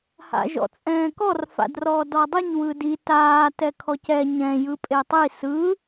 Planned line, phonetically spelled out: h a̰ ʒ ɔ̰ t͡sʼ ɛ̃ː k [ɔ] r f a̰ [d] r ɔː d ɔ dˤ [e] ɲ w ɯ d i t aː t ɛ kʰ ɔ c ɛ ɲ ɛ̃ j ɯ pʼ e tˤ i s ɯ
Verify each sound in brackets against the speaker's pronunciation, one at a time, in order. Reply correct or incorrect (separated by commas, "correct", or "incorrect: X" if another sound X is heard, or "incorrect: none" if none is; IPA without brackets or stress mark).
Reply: correct, correct, incorrect: i